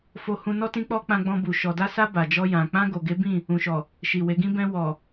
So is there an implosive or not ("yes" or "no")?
no